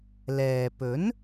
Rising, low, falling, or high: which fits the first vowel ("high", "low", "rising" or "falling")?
low